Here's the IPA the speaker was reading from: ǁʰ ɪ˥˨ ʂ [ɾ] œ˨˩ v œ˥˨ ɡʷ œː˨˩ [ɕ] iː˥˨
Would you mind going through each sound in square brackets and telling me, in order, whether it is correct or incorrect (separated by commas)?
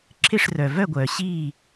incorrect, correct